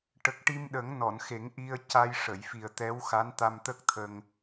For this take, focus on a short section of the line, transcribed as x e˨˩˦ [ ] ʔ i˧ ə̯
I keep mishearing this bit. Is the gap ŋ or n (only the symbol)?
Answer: ŋ